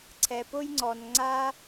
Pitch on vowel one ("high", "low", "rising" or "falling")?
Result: low